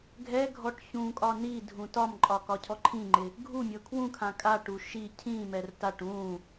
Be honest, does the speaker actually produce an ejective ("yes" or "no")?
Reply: yes